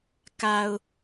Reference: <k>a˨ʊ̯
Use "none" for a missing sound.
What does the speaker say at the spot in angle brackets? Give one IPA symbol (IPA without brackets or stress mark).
k